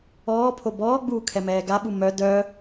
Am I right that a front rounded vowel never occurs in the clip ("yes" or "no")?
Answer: no